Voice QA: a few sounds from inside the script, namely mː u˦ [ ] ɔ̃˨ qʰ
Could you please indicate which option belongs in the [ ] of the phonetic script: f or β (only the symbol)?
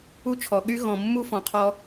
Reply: f